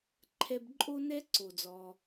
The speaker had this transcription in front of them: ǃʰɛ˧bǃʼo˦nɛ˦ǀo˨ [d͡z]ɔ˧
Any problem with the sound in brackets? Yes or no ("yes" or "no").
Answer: no